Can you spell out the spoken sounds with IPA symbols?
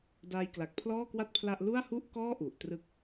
d aː˧ j k l a˨˩ k̚ pʰ l ɔː˥˩ k w a˥˩ t̚ pʰ l a˥˩ ʔ l u˥˩ a̯ h u˥˩ ʔ k ɔː˥˩ ʔ u˨˩ ʔ t r ɯ˥˩ k̚

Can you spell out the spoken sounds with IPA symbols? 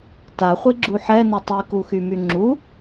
t a χʷ i ɡ͡ǁ u ħ ɛ n ʊ tˤ i k u x y m y ŋ͡ǁ u

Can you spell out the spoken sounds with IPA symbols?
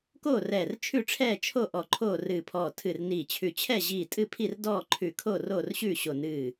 k oː˥˨ r ɛː˧˩ r t͡ʃʰ ʉ˥˨ ʈ͡ʂʰ ɛː˥˨ t͡ʃʰ o˥˨ ʔ ɔ˧˩ ǃʰ oː˥˨ r ɨː˧˩ pʰ ɔː˧˩ tʰ ɨ˧˩ r n iː˧˩ t͡ɕʰ ʉ˧˩ t͡ɕʰ ɛ˥˨ ʑ iː˧˩ tʼ ɨ˥˨ pʰ i˥˨ r d ɔː˥˨ ǃʰ ʉ˧˩ kʰ o˥˨ r oː˥˨ r ɕ ʉː˥˨ ɕ o˧˩ n ɨː˧˩

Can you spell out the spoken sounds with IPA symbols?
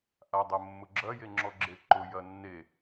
ʔ a dˤ ə mː ʊ ɡ͡ǁ ɐ j e ŋ͡ǁ ɔ ɡ͡ǁ e ǃ ʊ j ɐ nː e

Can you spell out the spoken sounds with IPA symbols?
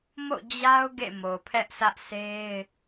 m o̰˦˨ d͡ʑ a˦ ʊ̯ ɡ ḛ˦˨ m o˨ pʰ ɛ˦ ʔ sʰ ä˦ ʔ s e˦ ɪ̯

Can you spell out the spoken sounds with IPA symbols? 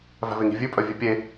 v æ̤ v e ŋ i̤ vʲ ʉ pʼ œ vʲ ʉ pʲ e

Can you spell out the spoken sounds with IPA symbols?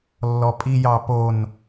lː ɔ pʼ i j ɑ p o n

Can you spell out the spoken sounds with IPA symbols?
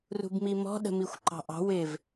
r ṳ b m i m ɔ̤ ɗ ə̤ m i xʷ ǃ ɑ̤ ʔ ɑ̤ w ɪ v

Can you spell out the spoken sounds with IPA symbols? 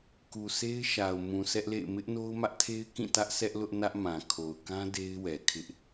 k u˨ sʰ e˦ ɪ̯ ʃ a˨ ʊ̯ m ũ˨ sʰ ɛ˦ ʔ l ḛ˦˨ ɪ̯ m ɪ˦ ʔ n o˦ ʊ̯ m ä˦ ʔ tʰ e˦ ɪ̯ k ĩ˦˨ t ä˦ ʔ s ɛ˦ ʔ l ʊ˦ ʔ n ä˦ ʔ m ã˨ kʰ o˨ ʊ̯ k ã˦ d e˦ ɪ̯ w ɛ˨ kʰ ɪ˦ ʔ

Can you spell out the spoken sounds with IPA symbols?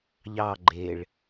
ʎ ɑ ɡ͡ǃ e ɭ

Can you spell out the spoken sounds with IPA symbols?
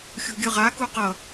xʲ ṳ ɡʲ ɯ ʁ a k u q ʌ

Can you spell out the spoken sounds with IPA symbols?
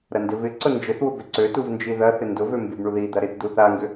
ɾ ɐ n d ɪ v ɪ ǀ ʊ n d͡ʒ ɪ θ w ʊ b ʏ ǀ ø t u v n d͡ʒ i ð ɐ θ ɪ n d ʊ v ø m b i b ɳ u ð i d̪ ɐ ɾ ɪ t d u θ a ŋ ɡ ʏ

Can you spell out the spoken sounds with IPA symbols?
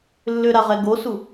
lː ʏ ɾ a ʁ ɛ ɡ o s u

